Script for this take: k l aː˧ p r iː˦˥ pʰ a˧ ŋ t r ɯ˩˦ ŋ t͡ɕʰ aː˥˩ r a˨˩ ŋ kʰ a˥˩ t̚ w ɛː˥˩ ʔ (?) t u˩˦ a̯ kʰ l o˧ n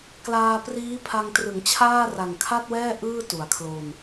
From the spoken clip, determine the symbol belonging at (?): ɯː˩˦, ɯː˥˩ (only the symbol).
ɯː˥˩